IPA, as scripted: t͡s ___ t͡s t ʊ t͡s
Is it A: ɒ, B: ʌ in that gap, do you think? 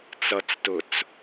B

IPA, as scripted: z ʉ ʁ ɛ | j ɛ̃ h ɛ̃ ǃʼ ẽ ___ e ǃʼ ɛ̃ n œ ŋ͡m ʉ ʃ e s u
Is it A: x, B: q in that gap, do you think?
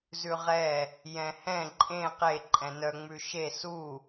B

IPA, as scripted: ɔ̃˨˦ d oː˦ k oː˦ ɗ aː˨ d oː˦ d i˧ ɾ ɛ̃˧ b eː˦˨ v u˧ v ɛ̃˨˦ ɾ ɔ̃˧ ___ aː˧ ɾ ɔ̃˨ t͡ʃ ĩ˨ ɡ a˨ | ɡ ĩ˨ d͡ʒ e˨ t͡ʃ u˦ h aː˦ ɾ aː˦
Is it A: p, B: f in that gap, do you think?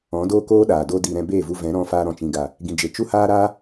B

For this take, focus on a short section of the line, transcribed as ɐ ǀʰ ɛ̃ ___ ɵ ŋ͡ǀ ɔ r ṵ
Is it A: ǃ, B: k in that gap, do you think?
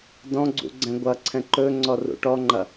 A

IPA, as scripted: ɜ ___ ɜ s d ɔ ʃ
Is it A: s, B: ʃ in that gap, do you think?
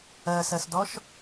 A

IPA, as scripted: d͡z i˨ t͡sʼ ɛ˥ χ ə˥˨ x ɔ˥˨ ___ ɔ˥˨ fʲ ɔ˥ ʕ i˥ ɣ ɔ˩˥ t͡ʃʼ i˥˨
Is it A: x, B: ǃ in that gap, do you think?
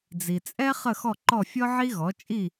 B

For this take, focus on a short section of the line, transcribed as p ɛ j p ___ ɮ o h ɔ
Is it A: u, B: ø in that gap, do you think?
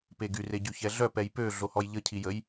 B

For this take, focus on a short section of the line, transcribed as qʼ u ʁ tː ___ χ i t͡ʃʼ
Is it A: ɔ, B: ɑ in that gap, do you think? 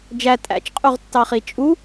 B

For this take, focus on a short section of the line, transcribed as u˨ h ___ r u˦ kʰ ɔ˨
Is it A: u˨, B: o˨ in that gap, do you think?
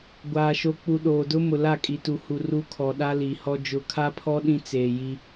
A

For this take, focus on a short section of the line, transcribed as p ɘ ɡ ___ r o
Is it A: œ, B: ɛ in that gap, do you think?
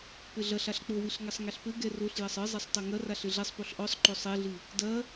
B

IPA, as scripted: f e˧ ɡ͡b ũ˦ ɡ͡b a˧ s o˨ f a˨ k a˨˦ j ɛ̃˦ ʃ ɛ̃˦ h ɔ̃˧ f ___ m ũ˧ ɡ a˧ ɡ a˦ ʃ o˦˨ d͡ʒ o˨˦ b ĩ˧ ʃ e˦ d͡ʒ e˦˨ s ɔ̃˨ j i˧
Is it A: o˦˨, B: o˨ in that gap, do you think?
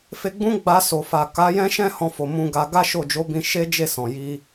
B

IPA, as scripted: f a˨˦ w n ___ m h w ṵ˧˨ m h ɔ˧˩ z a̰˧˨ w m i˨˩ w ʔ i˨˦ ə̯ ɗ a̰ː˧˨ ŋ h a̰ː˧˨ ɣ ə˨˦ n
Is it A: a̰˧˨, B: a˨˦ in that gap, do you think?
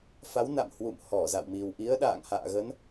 A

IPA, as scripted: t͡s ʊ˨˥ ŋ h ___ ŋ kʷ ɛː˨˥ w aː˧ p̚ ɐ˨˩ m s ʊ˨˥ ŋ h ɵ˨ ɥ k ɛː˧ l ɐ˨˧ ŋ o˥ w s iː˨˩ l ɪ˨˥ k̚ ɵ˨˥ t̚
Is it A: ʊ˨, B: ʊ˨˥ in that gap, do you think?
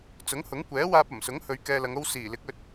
B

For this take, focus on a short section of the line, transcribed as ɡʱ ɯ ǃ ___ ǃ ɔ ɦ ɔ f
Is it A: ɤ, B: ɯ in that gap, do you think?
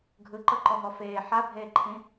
A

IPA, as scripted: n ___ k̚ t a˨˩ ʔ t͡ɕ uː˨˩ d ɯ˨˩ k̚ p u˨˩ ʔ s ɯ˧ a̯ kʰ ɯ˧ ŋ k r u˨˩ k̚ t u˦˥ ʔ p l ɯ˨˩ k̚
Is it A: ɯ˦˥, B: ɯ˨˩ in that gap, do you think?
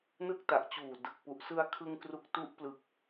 A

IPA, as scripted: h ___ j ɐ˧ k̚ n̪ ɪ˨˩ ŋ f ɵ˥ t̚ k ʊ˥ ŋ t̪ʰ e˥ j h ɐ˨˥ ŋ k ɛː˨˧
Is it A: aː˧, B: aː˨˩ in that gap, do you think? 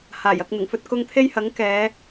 B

